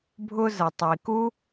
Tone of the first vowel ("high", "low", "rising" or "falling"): high